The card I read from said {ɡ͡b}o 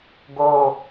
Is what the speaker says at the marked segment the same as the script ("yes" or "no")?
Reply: no